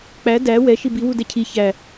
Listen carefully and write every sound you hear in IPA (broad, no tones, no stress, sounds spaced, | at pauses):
k͡p æ d æ w ɛ ʃ i b i w u d ɛ cʰ i ç æ